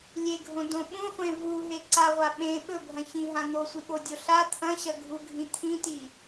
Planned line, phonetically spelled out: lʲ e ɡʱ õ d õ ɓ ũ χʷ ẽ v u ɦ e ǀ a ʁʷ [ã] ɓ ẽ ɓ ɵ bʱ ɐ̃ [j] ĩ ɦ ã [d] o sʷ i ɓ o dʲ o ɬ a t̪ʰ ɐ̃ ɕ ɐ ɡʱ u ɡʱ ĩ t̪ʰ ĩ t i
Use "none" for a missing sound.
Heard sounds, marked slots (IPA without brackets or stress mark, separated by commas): a, ç, n̪